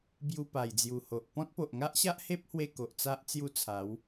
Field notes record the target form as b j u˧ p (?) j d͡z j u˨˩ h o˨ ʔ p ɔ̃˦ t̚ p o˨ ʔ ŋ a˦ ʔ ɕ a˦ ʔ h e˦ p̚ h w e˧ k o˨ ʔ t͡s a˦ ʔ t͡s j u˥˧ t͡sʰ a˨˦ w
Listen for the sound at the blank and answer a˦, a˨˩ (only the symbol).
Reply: a˨˩